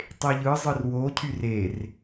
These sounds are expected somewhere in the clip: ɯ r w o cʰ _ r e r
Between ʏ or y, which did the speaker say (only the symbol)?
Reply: y